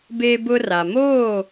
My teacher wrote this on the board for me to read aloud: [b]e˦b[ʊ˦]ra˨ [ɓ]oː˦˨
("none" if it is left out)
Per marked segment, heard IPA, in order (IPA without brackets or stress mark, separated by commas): b, ʊ˦, m